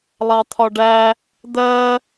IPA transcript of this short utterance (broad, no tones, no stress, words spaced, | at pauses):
lˠɑt̪ʰɒɖæ | d̪ɜ